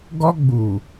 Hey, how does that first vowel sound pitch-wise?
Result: high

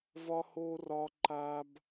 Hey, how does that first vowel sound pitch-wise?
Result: high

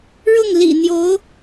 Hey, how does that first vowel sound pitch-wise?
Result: falling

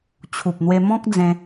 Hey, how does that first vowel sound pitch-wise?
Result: low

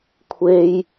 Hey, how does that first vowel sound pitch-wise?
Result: low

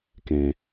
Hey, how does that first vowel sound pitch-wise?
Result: low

